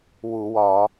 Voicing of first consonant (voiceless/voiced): voiced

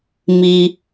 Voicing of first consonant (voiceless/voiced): voiced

